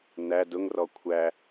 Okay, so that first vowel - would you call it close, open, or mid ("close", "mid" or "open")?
open